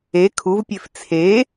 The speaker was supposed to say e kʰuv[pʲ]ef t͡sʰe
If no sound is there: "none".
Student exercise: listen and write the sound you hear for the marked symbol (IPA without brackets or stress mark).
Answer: pʲ